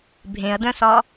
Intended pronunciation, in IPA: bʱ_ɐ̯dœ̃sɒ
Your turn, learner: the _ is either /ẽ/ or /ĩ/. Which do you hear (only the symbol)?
ẽ